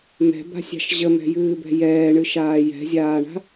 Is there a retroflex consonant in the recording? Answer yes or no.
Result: yes